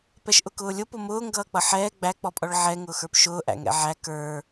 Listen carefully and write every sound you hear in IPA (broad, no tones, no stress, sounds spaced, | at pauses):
p ɛ ʃ ʔ ʊ k ʊː lʲ ʊ p ʊ m ʊː ŋ ɡ ʌː k͡p ʌ ħ ɛː ɡ͡b æ k͡p ɔ pʼ ɔ ɭ ʕ ɛ ŋ ʊː x ə˞ p ʃ ʊː ʔ æ̰ ŋ ɛ̰ ʕ æ k ə˞